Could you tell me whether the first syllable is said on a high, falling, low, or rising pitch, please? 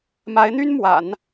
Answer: rising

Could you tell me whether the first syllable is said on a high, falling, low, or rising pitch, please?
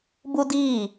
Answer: high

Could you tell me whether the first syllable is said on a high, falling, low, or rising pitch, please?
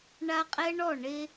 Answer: high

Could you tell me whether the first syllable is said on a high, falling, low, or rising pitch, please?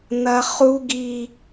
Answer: high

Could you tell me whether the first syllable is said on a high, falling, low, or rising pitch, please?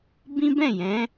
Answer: high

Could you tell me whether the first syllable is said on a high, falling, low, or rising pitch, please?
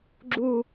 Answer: high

